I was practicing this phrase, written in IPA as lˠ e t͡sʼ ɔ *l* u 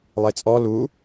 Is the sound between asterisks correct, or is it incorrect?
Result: correct